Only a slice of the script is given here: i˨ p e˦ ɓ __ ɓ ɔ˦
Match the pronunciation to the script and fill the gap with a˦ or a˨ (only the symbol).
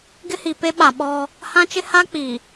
a˨